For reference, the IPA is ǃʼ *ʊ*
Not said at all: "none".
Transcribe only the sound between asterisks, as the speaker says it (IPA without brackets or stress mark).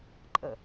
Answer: ə